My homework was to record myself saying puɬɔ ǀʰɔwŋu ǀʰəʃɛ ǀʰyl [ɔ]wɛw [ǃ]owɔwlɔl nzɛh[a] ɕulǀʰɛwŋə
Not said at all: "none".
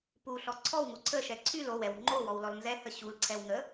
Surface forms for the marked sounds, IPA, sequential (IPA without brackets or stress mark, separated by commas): o, ŋ͡ǃ, ə